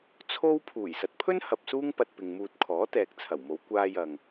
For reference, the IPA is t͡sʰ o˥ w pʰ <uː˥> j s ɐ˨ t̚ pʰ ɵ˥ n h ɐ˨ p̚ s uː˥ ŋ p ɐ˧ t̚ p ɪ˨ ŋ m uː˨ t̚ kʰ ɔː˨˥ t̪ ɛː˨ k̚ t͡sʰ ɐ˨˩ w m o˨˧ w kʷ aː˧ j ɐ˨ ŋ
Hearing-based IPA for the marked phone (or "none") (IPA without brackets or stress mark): uː˨˩